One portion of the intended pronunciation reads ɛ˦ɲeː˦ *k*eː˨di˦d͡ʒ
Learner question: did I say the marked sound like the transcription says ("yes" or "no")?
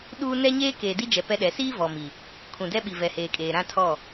yes